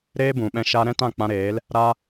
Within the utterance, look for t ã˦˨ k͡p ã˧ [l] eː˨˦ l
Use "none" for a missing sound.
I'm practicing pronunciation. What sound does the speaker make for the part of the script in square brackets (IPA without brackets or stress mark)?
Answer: ɾ